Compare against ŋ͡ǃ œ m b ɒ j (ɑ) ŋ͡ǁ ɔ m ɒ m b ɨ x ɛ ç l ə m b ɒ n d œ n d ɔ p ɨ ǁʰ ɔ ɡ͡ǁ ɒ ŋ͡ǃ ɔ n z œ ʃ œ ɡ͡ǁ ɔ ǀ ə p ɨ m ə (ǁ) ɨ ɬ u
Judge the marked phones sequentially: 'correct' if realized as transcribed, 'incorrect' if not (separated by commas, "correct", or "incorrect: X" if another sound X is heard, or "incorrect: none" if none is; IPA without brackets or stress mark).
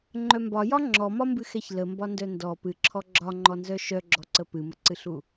incorrect: ɒ, incorrect: ǀ